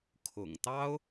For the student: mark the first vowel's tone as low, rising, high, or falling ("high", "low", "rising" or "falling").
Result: low